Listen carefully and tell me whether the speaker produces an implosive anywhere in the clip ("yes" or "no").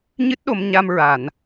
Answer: yes